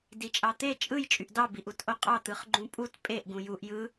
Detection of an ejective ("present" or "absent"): present